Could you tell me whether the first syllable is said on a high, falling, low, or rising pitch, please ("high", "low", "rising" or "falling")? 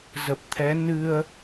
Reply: low